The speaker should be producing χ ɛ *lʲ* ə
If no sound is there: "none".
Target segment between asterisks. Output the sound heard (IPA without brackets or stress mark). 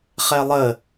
lˠ